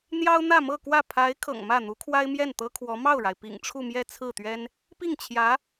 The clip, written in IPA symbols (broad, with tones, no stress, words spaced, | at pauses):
n̪jɑ˥ʊ̯n̪ä˥˧mɤ˥˧kwä˥˩ pʰa˧˥ɪ̯ kʰɤ̰˨˩ŋmä˥˩n̪u˧˥kʰwa˥ɪ̯ mjɛ˥˩nt̪ɤ˥kʰwɔ˧˥ mɑ˥˩ʊ̯ɻa˩ɪ̯pḭ˨˩ŋ ʈ͡ʂʰu˥˧mjɛ˥˧t͡sʰɹ̩˥˩t̪ɥɛ˥n | pi˥˩ŋt͡ɕʰjä˧˥